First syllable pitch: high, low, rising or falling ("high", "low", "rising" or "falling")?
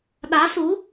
rising